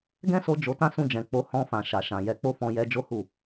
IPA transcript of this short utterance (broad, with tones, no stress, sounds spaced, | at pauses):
ɡ ɛ̃˦ s o˧ d͡ʒ o˧ t ã˦ s ũ˧ d͡ʒ ɛ̃˨ k͡p o˨˦ h ɔ̃˧ f ã˨ ʃ a˨ ʃ ã˨ j ɛ˨ k͡p o˧ f ɔ̃˧ j ɛ˧ d͡ʒ o˦ h u˦˨